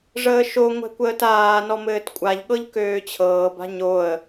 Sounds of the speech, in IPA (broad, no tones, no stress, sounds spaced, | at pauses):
ʐ əː ʃ o ŋʷ ɛ̤ kʷ əː t aː n ɔ m ɘː t kʷʼ a ʎ ɠ ɤ ʎ k øː t͡ɕʰ ɤː b a̤ ɲ o ə̯